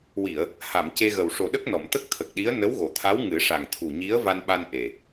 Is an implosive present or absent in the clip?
present